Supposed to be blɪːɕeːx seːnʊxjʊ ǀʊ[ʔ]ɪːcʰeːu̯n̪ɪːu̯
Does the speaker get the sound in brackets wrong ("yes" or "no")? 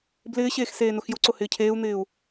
yes